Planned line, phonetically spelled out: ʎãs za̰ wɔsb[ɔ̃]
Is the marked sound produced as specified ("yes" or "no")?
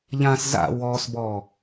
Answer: no